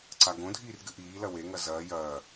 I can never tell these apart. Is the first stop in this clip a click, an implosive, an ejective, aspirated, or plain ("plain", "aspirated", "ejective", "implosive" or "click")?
click